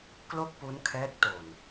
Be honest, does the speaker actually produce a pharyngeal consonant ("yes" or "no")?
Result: no